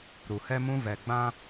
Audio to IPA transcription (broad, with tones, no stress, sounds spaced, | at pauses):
ɾ u˨ h ɛ˦ m ũ˦ v ɛ˨ ɡ͡b ã˦